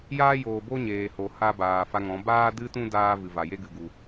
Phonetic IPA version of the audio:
j aː˦ j oː˨ b o˦ ɲ eː˨ h o˨ h a˦ b aː˨ f a˧ ŋ ɔ̃˨˦ b aː˦ d ɨ˦ t ũ˦ d aː˦ v ɨ˨ v a˨ j e˦ ɡ ɨ˨ ɡ u˨

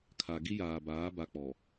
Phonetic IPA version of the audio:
kʰ a˨ ɡ i˦ j aː˨ b aː˨˦ b a˦ k͡p ɔ˨

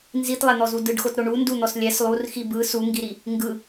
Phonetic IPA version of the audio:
n z i t lˠ ɛ n̪ ɔ z u d ɯ ɖ x o t ɾ o ɳ u n d u n̪ ɔ s lʲ ɛ s lˠ u r x i b ɯ s u ŋ ɡ i ɾ i | ŋ ɡ ɯ

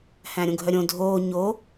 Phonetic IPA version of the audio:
h æ̃ ɾʲ õ ɡʱ œ ɾʲ õ dʱ oː ɲ o

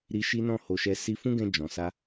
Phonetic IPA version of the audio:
ɾ i˧ ʃ i˦ n ɔ̃˦˨ h o˧ ʃ ɛ˧ s i˧ f ũ˦ ɡ ɛ̃˧ d͡ʒ ɔ̃˨ s a˧

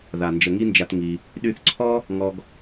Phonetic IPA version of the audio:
ð a˨ n d͡ʒ ə˨ ŋ i˦ n d͡ʒ a˧ t ŋ i˧ | ɗ y˧ θ ǀʰ ɔ˦ | ŋ ɔ˦ ɡ

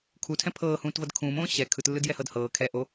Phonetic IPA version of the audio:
kʰ u tʰ ɛ̃ pʰ ɤː h ũː t v ɤ d kʰ ũː m õː ɕ ɛ kʰ ɯ t lː ɯ d j ɛ h ɤ d h ɤː kʰ ɛ ʔ o

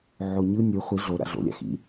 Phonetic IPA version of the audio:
ʕ o ɲ ɯ nʲ ɯ χʷ i ɮ o ɾ a̰ ɮ o̰ lʲ a̰ x ḭ

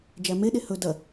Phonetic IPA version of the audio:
d͡ʒ æ m e ɗ e h ɵ d ɐ

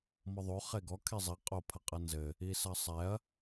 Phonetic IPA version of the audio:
m ɔ ðˤ o χ e ɡ ɔ kʰ e zˤ i qʼ o pʰ ɐ qʼ ɐ n z ɘ | i s ɐ sˤ ɛ ɐ̯

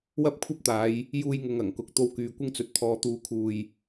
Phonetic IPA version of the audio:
w ɐ˥ p̚ kʷʰ ɐ˥ p̚ t̪ aː˨˧ j | j uː˧ j ŋ ʊ˨ ŋ ɐ˨˩ ŋ k ʊ˨ k̚ t̪ o˧ w k yː˧ kʷ ɪ˥ ŋ t͡s ɵ˧ t̚ t̪ʰ ɔː˨ t̪ uː˨˧ kʰ uː˨ j

